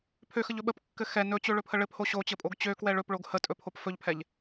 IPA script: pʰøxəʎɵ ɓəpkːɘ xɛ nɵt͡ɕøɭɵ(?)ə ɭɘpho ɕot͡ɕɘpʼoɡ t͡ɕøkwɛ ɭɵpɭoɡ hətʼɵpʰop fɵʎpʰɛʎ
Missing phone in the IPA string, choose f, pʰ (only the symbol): pʰ